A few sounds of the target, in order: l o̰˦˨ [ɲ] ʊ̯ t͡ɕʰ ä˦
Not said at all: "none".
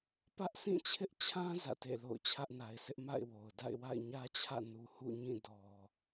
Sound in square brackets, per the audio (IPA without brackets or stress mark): none